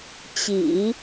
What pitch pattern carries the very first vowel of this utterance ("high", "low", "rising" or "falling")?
low